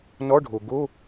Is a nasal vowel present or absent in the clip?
absent